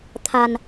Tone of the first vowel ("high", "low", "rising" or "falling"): low